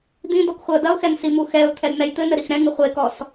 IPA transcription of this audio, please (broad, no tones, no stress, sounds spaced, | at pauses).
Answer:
d̪ ĩ d ɔ k χʷ ɨ ə̯ d ɐ ʊ̯ x ɛ n s i m u x ɛ ʊ̯ t̪ʰ ɛ d n̪ ɛ j t̪ ɘ n ɘ ɾ i x ɾ ɛ̃ ŋ ɨ χʷ e k ɔ s